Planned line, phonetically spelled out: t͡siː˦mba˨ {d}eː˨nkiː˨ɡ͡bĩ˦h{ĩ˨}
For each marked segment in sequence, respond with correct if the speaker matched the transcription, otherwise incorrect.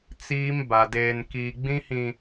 correct, correct

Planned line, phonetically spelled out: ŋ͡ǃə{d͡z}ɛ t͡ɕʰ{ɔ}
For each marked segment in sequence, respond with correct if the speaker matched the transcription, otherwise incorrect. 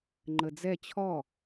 correct, correct

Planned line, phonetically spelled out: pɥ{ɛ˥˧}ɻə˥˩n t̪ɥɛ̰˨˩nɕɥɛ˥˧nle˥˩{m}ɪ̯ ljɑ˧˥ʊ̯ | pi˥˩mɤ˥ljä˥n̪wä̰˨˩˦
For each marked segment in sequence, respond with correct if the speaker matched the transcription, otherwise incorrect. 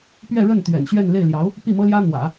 correct, incorrect: none

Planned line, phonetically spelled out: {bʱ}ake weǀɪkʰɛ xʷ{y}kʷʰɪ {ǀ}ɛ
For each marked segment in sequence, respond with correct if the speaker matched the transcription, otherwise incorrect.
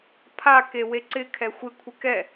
incorrect: pʰ, incorrect: ɪ, incorrect: k

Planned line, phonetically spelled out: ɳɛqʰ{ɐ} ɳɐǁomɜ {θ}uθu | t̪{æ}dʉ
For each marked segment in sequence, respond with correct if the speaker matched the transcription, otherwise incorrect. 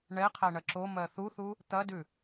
incorrect: æ, correct, incorrect: ɐ

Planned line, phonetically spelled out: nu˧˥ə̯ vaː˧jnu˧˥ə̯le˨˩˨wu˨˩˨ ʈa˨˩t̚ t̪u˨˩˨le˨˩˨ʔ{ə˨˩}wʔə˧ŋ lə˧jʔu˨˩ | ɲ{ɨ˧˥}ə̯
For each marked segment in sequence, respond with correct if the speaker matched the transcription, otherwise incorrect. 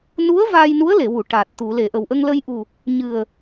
correct, incorrect: ɨ˨˩

